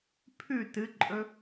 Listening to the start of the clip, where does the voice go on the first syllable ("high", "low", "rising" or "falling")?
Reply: falling